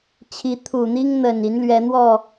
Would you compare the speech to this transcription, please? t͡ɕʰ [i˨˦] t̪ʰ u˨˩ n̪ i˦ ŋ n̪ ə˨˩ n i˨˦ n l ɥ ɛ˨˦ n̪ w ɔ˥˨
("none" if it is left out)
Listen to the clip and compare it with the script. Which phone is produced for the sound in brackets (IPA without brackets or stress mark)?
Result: i˨˦